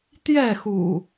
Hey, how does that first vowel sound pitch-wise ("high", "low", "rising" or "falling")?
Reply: falling